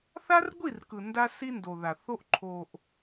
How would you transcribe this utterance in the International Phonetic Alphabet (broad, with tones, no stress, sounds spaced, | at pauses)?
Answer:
θ a˦ r ɡʷ i˦˨ r k ɯ˨ n d a˦ s i˦ n d o˨ ð a˨ θ o˦ ʔ ǃʰ o˨ ʔ